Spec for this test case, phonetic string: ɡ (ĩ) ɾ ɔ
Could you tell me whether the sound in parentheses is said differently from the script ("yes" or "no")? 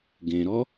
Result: yes